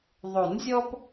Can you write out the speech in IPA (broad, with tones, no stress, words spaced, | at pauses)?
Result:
ðˤo˨˩˦nzʲɔ˦p